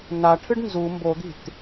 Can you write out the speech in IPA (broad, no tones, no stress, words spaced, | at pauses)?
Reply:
naʈʰɨɖ nzu mbod̪i̤t